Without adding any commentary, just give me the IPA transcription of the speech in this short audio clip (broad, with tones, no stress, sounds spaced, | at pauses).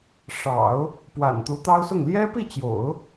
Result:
ʂ ɑ̰˨˩˦ ʊ̯ | p w a̰˨˩ n t̪ u˧˥ t̪ ɑ˥ ʊ̯ s ʊ˥˩ ŋ l j ɛ˥ p i˥˩ t͡ɕ j o̰˨˩˦ ʊ̯